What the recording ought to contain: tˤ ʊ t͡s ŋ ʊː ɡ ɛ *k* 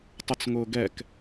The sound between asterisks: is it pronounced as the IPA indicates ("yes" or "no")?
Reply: yes